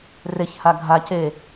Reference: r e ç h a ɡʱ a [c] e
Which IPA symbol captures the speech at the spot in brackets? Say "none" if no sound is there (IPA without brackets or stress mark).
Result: c